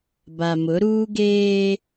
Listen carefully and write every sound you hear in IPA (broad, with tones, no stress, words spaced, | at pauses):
ba˨mʊ˨˦ ɾuː˦ɡeː˦